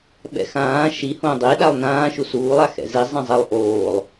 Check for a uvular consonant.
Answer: absent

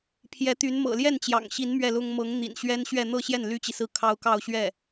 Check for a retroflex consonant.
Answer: absent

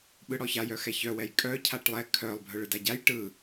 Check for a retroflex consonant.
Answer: present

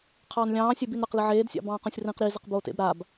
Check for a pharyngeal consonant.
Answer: present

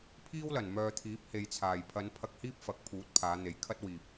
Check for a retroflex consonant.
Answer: absent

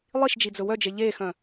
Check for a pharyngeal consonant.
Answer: absent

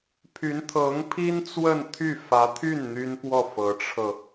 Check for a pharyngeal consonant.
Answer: absent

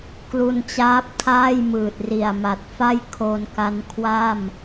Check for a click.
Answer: absent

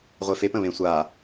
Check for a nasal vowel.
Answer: present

